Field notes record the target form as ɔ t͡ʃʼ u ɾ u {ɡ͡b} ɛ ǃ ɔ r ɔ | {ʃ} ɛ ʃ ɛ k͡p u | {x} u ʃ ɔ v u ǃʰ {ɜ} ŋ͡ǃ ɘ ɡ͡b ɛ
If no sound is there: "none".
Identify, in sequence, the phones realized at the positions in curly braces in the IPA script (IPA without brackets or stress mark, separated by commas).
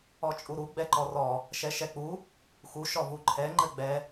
ɡ͡b, ʃ, x, ɛ